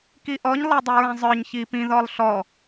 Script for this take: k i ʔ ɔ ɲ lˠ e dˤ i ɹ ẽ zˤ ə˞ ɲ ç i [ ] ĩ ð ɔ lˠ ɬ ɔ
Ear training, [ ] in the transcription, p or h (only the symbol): p